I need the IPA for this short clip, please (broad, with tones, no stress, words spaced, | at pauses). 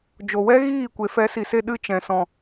d͡ʒo˨wɛ˦ ɣiː˦˨kʷe˨ fɛ˨˦si˨se˧ ɗɨ˧t͡ʃɛ̃˨ sɔ̃˨